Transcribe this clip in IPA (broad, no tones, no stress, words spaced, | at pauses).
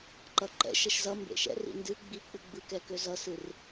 ǃʌǃɛ̰ʃ əʃzʌ mbḛʃɛ̰r ḭndɨ ɡ͡bik͡pɨ ɡ͡bɯkɛkø zʌsɨr